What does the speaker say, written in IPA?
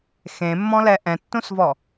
x ẽ mː ɔ̃ l ɛ ʔ ɛ̃ tː ũ s v ɔ

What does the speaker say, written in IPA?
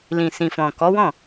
l ĩ˨ s ĩ˨ f ɔ̃˨ k ɔ˨˦ w ɔ̃˦˨

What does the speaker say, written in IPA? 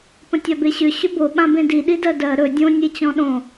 p ə̃ tʲ a b e ɕ ʏ ɕ ʏ b o ɓ ã b ẽ d i ɗ i d ɜ d ɜ ɾ ɵ dʲ õ nʲ e t͡ɕ ɔ̃ ɗ õ

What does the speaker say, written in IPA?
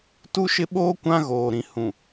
t u˦ ʃ ɪ˦ ɓ oː˦ kʷ ã˦ ɣ oː˨ ɾ ĩ˨ h ũ˨

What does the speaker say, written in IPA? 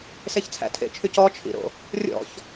s e ç t͡sʰ æ̰ tʰ ḛ t͡ʃʰ y c ɔ t͡ʃʰ ḭ ɾ o̰ | rʲ ɔ̰ ç

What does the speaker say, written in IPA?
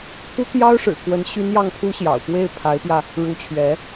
pʰ u˥ t̪ j ɑ˥ ʊ̯ ʂ ɻ̩˨˩ k w ə˧˥ n ɕ y˥ n j ɑ˥˩ ŋ t̪ʰ u˥ ɕ j ɑ̰˨˩ ʊ̯ p w e˥˩ ɪ̯ pʰ a˧˥ ɪ̯ p j ä˧ | ɻ u˧˥ t͡ɕʰ ɥ ɛ˧˥

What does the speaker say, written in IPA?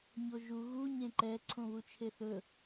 ɲ o ʒ u ɣ u ɲ ẽ ǃ ɛ ǀʰ õ β u t͡ʃʰ e θ ɵ

